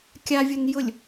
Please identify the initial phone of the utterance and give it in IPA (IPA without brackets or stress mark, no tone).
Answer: kʲ